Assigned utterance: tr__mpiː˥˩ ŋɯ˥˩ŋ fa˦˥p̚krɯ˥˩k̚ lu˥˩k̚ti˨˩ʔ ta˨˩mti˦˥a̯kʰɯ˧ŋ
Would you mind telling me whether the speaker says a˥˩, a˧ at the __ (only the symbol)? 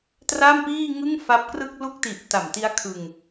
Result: a˥˩